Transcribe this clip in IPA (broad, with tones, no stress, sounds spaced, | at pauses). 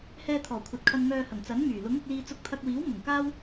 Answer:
h ɛː˧ t̪ʰ ɔː˨˩ kʷʰ ɐ˨ t̚ kʰ ɐ˧ n ŋ œː˧ h ɐ˨˩ ŋ t͡s ɐ˨˥ n m yː˨˩ l ʊ˨˥ ŋ ʊ˧ k̚ l iː˧ t͡s ʊ˧ k̚ t̪ʰ ɐ˧ k̚ w iː˨˥ w m ʊ˨˩ ŋ k aː˥ w